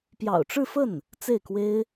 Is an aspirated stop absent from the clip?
yes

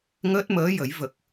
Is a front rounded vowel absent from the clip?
yes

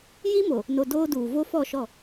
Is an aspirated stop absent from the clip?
yes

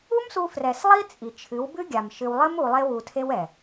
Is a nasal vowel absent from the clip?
yes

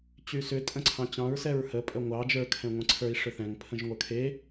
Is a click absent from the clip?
no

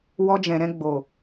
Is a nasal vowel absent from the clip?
no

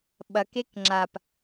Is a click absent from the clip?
no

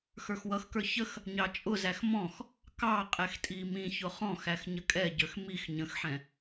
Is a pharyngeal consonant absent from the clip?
no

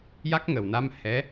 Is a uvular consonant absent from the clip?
yes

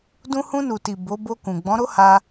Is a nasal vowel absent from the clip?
no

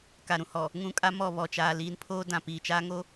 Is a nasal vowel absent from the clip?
no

